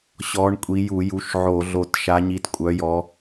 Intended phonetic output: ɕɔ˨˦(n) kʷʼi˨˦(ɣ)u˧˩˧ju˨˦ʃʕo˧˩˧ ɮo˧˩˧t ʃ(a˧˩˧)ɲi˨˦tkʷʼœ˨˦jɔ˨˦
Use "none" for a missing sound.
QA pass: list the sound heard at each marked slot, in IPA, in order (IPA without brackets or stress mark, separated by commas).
ɳ, j, a˨˦